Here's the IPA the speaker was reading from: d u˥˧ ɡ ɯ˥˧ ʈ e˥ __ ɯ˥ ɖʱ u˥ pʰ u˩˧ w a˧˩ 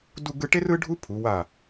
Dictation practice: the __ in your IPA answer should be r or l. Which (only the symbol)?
r